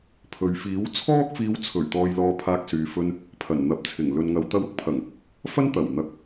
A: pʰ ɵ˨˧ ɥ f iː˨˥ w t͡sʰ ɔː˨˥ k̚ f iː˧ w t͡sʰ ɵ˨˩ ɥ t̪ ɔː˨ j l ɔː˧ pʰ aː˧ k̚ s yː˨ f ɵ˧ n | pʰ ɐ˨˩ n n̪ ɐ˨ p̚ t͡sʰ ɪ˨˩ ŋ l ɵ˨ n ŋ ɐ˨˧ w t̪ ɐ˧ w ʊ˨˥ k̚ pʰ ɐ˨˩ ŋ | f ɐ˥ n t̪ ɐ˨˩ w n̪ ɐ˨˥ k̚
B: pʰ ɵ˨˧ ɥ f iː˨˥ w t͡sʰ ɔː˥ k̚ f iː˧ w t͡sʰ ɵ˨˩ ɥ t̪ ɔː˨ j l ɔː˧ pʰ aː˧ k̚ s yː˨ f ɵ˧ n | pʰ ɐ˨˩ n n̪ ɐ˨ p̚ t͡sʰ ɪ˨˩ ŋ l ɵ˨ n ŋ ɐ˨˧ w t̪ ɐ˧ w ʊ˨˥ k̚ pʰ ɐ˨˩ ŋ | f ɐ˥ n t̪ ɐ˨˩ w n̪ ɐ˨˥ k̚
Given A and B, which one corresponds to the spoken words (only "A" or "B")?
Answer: B